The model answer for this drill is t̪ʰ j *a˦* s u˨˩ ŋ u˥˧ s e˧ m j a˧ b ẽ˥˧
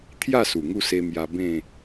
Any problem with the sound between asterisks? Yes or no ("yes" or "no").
yes